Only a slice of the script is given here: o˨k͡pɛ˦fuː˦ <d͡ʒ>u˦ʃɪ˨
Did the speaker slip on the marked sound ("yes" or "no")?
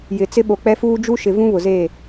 no